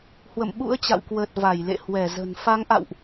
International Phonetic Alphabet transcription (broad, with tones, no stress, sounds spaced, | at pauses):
h w ə̰˧˨ m ɓ ṵ˧˥ ə̯ t͡ɕ a̰˧˨ w k w əː˨˩ t̚ v a˧˩ j l ḛ˧˨ h w ɛ˧˩ z ə̤˨˩ n f a˨˦ ŋ ʔ a̰˧˨ w ʔ